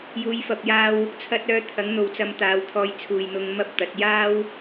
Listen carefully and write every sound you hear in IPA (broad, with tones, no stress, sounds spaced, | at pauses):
j uː˨˧ j f ɐ˨ p̚ j aː˧ w | t͡sʰ ɐ˧ t̚ œː˧ t̪ʰ ɐ˨˥ ŋ n̪ o˨ w t͡s ɐ˧ m t̪ aː˨˧ w t̪ʰ ɔː˧ j t͡sʰ uː˨ j n̪ ʊ˧ ŋ m ɐ˥ p̚ t̪ ɐ˨˥ t̚ j aː˥ w